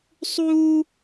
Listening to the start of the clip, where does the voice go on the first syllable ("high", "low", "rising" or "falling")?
high